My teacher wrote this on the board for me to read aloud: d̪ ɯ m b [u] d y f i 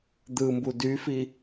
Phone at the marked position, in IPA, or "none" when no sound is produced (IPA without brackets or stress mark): u